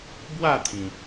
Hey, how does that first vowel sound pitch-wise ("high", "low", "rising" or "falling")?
falling